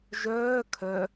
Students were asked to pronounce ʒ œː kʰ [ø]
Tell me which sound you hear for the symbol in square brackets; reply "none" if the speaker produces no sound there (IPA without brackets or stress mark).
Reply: œ